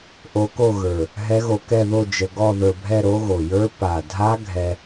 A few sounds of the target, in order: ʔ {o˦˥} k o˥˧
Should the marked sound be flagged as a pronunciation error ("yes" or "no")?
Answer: no